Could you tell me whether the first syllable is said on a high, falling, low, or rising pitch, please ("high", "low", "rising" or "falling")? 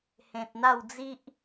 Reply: low